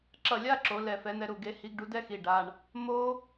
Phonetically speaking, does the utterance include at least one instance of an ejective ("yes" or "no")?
no